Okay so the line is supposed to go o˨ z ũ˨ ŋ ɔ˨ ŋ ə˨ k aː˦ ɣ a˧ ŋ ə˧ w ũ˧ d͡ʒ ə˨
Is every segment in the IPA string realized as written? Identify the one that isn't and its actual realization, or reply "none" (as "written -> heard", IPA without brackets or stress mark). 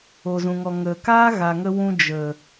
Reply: a˧ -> a˨